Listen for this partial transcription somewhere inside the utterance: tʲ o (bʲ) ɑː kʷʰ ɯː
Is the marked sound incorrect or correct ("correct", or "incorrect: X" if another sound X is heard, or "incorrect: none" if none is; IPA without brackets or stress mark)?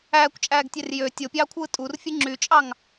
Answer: incorrect: pʲ